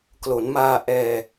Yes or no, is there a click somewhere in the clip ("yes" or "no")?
no